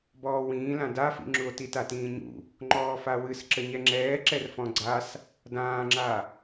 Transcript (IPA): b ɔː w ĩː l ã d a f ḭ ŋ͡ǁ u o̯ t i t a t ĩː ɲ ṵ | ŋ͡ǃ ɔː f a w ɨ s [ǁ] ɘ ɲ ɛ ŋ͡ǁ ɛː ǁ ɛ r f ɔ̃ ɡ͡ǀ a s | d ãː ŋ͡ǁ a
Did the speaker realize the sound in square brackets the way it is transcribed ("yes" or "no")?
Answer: yes